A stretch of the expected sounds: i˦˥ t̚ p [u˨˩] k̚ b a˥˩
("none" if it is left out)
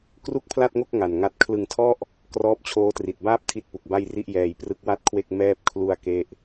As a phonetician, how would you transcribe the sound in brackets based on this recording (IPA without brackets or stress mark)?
u˨˩